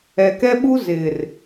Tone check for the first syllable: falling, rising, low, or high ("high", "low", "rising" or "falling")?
low